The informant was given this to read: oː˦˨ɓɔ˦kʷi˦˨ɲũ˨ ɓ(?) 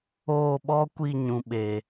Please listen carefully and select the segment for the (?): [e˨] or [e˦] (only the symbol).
e˨